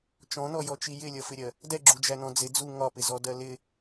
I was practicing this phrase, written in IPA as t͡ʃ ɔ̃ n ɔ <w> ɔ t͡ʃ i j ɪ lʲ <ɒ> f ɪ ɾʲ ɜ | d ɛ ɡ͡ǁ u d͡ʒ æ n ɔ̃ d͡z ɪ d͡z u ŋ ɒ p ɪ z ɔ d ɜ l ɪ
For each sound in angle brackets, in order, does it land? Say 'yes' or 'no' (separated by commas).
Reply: no, no